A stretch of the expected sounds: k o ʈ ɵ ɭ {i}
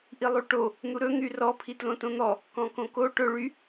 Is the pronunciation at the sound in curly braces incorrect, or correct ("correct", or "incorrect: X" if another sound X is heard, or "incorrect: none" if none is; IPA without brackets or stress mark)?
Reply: incorrect: y